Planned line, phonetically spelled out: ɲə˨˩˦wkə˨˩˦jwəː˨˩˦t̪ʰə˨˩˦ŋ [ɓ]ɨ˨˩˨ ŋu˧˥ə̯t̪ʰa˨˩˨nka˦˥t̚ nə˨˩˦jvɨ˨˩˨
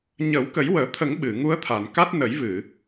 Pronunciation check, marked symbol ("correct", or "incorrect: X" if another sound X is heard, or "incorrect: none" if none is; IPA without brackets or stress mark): correct